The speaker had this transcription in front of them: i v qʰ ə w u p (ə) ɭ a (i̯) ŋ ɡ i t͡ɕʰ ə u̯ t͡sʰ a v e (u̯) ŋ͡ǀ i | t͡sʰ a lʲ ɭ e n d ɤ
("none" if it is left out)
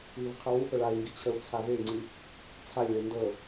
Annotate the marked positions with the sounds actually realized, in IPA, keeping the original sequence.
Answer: ə, i̯, y̯

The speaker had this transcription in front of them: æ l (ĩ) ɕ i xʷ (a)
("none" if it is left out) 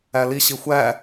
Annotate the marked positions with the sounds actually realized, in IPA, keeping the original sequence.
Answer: i, æ

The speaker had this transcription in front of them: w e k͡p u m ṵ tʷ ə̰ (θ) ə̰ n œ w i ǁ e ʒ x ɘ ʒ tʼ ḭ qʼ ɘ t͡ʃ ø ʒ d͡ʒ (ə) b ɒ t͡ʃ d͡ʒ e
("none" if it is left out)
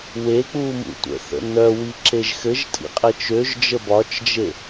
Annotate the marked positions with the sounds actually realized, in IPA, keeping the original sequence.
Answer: θ, ə

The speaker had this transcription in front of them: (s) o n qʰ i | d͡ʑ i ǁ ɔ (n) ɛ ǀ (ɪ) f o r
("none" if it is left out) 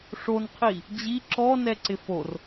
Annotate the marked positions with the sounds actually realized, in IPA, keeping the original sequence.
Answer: ʂ, n, ɪ

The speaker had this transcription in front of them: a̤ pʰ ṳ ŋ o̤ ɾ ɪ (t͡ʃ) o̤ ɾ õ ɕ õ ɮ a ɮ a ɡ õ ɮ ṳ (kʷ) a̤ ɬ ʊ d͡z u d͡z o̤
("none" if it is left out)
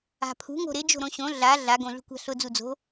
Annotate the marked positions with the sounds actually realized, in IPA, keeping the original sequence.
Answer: d͡ʒ, kʷ

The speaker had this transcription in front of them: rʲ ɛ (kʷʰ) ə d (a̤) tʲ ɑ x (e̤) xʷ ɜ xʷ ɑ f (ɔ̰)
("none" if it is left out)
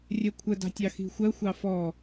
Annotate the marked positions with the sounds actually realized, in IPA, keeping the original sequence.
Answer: kʷʰ, ɑ̤, i̤, ɔ

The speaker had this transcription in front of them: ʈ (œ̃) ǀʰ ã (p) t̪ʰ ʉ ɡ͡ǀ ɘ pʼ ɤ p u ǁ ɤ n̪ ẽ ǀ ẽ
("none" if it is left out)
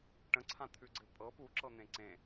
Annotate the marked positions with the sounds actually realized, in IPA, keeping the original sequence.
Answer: ə̃, none

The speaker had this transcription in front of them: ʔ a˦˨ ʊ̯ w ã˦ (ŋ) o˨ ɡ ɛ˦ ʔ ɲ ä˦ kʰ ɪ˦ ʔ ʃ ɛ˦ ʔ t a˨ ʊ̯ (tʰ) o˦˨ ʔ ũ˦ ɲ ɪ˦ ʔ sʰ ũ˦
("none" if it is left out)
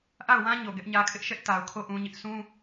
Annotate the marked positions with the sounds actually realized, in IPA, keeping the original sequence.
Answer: ɲ, kʰ

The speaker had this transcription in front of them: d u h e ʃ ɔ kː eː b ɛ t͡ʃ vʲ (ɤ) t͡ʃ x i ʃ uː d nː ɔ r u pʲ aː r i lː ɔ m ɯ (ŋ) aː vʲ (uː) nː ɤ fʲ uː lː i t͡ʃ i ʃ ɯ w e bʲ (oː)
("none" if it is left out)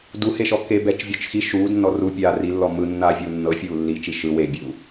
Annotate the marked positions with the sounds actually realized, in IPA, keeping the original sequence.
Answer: ɔ, nː, uː, uː

